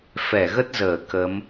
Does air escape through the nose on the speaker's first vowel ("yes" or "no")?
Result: no